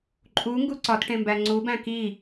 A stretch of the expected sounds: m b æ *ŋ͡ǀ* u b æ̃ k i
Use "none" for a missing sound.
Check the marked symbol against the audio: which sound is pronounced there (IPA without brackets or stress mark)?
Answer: ŋ͡ǀ